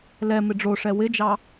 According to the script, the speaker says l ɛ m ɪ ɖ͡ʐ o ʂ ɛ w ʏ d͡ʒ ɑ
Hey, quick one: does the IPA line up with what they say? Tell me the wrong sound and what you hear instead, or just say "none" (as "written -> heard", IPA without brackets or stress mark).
ʏ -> ɪ